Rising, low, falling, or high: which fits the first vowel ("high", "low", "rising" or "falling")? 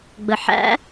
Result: low